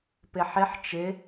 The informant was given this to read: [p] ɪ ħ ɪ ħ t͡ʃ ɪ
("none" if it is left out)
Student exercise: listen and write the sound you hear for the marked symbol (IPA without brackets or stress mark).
p